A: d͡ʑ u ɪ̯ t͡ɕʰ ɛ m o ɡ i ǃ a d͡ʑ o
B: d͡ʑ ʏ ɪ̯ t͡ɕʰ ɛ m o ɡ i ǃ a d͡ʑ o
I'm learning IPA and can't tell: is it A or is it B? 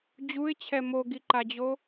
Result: A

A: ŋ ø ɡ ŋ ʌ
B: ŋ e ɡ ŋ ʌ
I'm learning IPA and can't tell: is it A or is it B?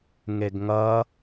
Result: B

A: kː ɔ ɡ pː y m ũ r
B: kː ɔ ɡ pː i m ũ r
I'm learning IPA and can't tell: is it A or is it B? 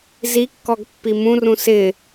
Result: B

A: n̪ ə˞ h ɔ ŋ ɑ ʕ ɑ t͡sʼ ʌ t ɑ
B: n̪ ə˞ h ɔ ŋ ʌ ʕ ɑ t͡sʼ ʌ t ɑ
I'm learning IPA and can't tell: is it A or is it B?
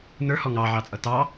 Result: A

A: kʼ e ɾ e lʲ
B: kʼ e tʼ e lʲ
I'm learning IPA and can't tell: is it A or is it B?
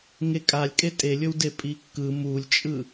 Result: B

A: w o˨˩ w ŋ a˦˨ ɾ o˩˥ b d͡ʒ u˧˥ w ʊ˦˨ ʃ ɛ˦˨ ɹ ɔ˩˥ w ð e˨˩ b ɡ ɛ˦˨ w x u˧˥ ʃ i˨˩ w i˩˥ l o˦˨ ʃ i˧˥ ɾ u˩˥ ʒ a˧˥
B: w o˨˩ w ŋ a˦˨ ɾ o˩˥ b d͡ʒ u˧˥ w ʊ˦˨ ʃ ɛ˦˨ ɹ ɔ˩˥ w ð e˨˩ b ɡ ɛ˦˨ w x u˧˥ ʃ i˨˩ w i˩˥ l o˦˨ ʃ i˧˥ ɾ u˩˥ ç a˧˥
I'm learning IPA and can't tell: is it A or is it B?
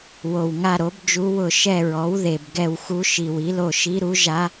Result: A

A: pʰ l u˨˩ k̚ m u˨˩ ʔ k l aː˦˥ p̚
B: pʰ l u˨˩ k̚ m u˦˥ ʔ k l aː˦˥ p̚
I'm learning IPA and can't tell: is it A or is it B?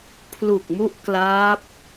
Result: B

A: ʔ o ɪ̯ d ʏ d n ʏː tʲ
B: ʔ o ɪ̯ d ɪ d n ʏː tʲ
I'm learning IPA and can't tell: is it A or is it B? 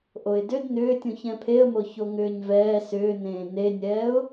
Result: A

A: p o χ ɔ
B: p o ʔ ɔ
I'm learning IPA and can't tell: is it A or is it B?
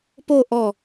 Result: B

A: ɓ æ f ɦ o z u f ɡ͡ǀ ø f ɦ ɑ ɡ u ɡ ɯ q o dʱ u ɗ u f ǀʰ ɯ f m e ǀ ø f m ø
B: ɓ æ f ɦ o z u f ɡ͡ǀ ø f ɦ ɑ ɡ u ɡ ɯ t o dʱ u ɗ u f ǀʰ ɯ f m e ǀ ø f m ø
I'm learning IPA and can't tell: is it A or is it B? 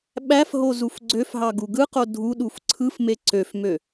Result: A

